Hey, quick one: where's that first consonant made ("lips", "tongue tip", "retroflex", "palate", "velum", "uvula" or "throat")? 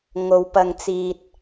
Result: velum